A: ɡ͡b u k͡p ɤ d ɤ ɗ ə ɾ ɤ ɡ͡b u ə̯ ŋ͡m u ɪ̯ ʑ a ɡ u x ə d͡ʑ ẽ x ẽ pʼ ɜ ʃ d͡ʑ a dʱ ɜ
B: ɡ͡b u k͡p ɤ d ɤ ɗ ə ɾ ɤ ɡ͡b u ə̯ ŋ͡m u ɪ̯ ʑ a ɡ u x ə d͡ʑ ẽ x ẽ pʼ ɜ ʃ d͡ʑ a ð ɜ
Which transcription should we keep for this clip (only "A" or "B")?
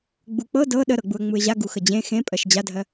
A